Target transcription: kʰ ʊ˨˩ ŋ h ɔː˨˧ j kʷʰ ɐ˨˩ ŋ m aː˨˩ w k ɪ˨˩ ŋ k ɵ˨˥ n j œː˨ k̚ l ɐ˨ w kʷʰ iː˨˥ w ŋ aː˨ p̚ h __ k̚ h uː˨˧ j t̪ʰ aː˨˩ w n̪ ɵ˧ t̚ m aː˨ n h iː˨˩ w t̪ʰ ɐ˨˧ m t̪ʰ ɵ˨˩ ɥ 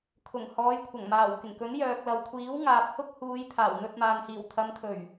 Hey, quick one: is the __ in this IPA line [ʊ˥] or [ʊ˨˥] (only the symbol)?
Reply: ʊ˥